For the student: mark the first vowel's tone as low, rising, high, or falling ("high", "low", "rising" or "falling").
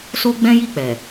high